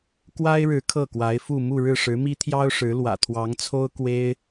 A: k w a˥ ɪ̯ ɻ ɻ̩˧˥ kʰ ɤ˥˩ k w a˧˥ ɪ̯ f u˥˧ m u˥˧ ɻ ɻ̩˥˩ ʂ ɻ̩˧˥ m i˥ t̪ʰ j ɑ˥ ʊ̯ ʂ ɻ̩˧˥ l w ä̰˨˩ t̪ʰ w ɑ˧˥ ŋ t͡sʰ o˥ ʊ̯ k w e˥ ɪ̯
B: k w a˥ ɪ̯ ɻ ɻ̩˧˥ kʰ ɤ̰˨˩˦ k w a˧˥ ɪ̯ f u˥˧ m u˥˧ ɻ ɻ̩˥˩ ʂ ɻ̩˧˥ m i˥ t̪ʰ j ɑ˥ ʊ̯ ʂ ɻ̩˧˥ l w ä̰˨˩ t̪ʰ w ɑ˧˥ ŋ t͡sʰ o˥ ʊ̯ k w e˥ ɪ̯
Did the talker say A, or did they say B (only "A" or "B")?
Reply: A